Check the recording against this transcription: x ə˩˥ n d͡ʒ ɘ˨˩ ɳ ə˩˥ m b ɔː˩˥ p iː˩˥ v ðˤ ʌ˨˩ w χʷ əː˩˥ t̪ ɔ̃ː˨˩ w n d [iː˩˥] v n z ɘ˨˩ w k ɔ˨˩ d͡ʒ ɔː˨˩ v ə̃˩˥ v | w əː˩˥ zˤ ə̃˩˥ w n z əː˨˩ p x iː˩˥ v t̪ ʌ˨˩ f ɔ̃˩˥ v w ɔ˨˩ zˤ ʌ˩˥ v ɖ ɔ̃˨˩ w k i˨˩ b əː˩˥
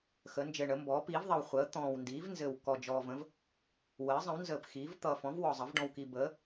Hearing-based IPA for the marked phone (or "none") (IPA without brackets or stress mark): iː˩˥